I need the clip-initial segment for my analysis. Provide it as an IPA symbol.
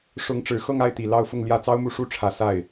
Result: ʂ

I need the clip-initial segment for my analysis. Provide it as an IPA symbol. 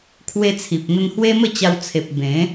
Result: kʰ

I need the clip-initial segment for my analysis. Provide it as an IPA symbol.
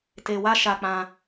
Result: t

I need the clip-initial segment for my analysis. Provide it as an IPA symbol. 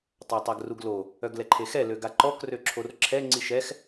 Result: tˤ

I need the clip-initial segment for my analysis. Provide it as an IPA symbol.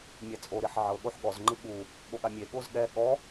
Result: mʲ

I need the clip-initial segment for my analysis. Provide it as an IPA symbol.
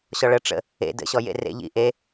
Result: ɕ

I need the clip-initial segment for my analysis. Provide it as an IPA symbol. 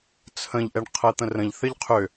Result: t͡sʰ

